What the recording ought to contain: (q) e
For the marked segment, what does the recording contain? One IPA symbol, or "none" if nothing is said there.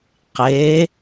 q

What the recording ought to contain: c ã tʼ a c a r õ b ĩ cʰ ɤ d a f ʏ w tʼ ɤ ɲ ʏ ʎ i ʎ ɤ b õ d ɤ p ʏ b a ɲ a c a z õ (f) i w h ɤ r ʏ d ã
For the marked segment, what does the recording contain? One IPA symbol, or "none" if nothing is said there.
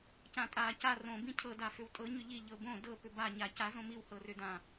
m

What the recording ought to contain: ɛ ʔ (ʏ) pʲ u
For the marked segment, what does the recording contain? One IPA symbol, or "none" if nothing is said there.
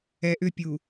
ʏ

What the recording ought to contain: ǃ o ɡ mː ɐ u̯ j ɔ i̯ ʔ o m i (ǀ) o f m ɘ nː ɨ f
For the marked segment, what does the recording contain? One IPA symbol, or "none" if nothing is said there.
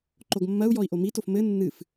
t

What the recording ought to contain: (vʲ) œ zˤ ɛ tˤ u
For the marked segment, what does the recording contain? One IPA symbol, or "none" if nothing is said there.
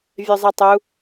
vʲ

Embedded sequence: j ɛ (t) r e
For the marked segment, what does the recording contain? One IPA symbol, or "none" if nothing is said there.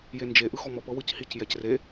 c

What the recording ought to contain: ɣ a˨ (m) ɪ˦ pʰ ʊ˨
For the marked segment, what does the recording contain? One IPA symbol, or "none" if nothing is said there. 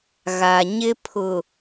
ɲ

